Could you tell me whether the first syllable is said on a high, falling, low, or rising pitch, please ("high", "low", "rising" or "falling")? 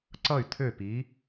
falling